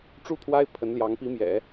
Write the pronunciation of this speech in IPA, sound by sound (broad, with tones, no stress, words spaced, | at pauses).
ʈ͡ʂu˥˩ t̪ʰwa˥ɪ̯ pʰə˧˥nljɑ˧˥ŋ pi˧˥mjɛ̰˨˩˦